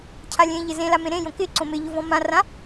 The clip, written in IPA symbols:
cʰalʲẽʎɪ zẽla mẽɾẽjõ kɪǀõ mɪ ʎʊvɔ̃mãrã

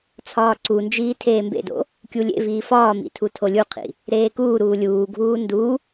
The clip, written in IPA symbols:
t͡sʰɒːǀund͡ʒiː tʰeːmbḛdo̰ | kʲulʲḛviː fɒːmḭ tʰutʰolʲuqʰḭ | ɾeːkuːɾuː lʲuːɡʱuː ndu

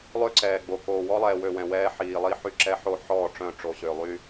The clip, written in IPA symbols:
lˠø˦ǀɛː˨ɡ͡bo˨ koː˨wɔ˦lˠɛː˨wø˨ wɛ̃˨wɛː˦ħiː˨lˠi˦ ħy˦ ǁɛ˦ħo˦ħɔː˦˨ ʈ͡ʂœ̃˦˨ʈ͡ʂo˨ɕø˨ lˠy˦

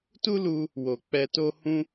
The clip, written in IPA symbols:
tu˦lu˧ | wo˨ k͡pɛ˧to˦ hũ˦

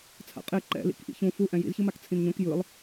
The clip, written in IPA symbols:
t͡sʰa̰qʼe ǃɛ̰lḭk ʔḭçũ fu ʔɛ̃jḭzçɯmak t͡sʰĩnɲõk jɯlˠ

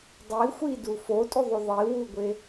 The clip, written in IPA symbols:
dˤi xʷidu fotʼuðˤu ðˤiwuɡʷe

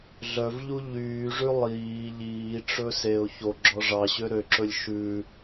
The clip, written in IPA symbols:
ɮœvʎu ʎyːʐʉ lˠiː ʎiːʈ͡ʂɵ seʊ̯ çoɡ͡ǁɔ ʐɑɕø ɾøǁɵlʲ ʃʉ

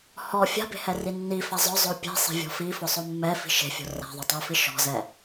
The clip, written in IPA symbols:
hɔ fʲa̤be̤hɛri nːifa zˤʊzˤo pʲe̤sˤe̤vʲɔ̤ fifʊsˤo mːɛfi̤ ʃe̤fʲo̤ ra̤ðˤotˤofi ʃɔ̤zɛ

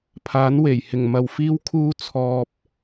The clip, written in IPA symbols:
pʰaː˨˥nwe˨˩jhɪ˨˩ŋmɐ˨w fiː˥wkʰuː˥ t͡sʰɔː˧p̚

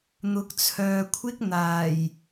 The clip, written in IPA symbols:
n̪ʊ˨˥k̚t͡sʰœː˨kʷʰɪ˥k̚ n̪aː˨˩j

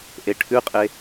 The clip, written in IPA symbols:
ʔeʈʰʉqʼe

